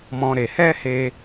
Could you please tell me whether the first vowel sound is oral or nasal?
nasal